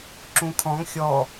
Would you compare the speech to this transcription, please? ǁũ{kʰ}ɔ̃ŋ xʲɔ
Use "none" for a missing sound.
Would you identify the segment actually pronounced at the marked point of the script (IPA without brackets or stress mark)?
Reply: kʰ